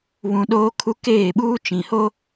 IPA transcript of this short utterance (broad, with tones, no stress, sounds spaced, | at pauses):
β ũ˦ ɗ oː˦ kʰ u˦ k eː˦˨ ɓ uː˦ t͡ʃ ĩ˨ h o˦